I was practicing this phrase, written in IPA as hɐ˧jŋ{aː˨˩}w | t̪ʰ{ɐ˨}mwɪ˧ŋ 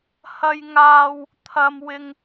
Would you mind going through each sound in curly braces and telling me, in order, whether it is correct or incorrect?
incorrect: aː˧, correct

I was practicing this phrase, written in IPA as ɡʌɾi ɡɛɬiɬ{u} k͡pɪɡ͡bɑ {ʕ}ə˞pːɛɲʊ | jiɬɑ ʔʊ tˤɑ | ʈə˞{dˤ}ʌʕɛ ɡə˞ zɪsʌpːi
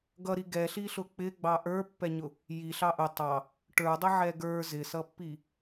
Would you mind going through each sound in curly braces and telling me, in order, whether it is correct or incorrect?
incorrect: ʊ, incorrect: ʔ, correct

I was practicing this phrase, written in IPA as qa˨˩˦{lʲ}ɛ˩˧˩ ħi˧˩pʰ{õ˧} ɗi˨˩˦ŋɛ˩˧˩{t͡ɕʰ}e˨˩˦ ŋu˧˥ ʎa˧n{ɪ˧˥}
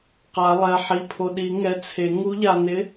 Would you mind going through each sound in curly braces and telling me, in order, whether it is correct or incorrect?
incorrect: lˠ, incorrect: o˧, incorrect: t͡sʰ, correct

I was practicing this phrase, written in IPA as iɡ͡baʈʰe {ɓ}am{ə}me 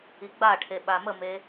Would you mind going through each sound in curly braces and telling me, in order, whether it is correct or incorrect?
correct, correct

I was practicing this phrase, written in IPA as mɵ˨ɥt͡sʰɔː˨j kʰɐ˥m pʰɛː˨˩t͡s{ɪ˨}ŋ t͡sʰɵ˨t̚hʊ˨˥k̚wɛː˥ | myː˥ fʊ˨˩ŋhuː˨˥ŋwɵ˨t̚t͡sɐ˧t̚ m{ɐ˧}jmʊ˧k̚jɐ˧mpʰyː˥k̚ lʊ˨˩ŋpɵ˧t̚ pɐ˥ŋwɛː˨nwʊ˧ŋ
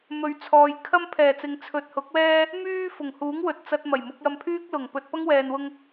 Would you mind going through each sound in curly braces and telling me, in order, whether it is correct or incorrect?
incorrect: ɪ˨˧, incorrect: ɐ˨˩

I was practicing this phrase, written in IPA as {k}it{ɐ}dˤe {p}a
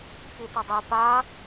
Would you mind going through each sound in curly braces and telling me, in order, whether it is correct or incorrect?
correct, correct, correct

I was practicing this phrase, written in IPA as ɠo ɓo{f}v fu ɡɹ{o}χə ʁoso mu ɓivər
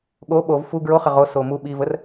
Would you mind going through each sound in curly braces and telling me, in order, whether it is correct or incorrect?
incorrect: none, correct

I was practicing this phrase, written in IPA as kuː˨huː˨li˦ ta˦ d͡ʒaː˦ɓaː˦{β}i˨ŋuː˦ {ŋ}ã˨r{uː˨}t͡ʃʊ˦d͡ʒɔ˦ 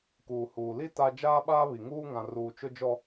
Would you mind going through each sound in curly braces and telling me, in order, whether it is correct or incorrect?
correct, correct, correct

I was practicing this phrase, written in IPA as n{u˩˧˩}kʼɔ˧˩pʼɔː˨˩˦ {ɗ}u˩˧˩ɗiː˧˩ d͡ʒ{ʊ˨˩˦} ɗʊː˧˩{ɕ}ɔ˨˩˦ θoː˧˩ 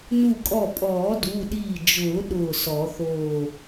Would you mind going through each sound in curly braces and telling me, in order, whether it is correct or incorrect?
incorrect: u˧˩, incorrect: d, incorrect: ʊː˨˩˦, incorrect: s

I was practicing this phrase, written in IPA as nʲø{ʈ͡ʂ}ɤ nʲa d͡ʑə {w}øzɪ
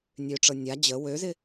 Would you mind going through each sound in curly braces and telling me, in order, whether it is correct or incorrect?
correct, correct

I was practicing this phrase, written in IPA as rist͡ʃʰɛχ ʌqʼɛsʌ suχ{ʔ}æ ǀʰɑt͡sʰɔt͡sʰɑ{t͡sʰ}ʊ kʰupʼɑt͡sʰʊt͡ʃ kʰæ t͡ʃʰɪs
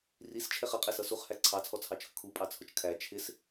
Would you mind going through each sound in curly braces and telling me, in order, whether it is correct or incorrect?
incorrect: h, incorrect: t͡ʃʰ

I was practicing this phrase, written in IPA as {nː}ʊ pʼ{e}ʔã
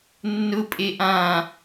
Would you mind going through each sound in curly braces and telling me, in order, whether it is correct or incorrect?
correct, correct

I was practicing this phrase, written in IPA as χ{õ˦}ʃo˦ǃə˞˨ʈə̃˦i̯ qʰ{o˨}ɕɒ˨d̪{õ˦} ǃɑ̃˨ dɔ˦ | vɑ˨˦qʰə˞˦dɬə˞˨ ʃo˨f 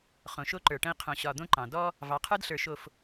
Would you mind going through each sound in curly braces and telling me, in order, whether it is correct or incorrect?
incorrect: õ˨, incorrect: õ˨, correct

